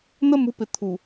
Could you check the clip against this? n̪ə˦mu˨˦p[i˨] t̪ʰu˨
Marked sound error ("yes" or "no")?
yes